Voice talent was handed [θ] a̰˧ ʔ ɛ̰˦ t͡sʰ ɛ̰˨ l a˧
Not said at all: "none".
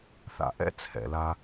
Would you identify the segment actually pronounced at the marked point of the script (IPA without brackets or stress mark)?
θ